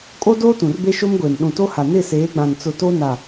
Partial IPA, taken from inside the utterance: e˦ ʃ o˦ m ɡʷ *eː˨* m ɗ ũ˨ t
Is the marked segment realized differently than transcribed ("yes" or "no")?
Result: no